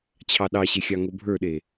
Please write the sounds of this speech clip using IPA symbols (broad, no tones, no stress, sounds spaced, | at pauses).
t͡ɕʰ ɑ ɗ ɑ ɕ e xʲ ɑ ŋ o bʱ ə˞ ɗ e